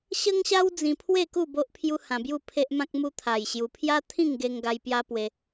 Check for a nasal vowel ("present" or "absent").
present